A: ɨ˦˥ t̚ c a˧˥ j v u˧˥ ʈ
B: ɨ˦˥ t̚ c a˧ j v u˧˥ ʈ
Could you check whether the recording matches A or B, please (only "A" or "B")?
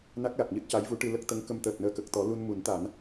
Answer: A